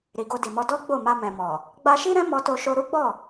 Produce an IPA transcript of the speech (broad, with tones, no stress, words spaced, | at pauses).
ɾi˨ɡo˧di˨mɔ˧ dɔ˦ ɡ͡bo˦˨ma˧mɛ̃˨mɔ˨ | ɡ͡ba˧ʃi˦ɾɛ̃˦ mɔ˧to˧ʃo˧ ɾu˦ɡ͡bɔ˦˨